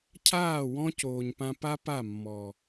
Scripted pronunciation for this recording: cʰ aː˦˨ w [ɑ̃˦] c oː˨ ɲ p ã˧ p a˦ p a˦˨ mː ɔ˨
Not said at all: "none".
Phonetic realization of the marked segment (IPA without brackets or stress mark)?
ɔ̃˦